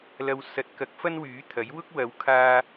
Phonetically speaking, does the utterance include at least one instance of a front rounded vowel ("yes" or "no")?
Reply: yes